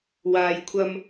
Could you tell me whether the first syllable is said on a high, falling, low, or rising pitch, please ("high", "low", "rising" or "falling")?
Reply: low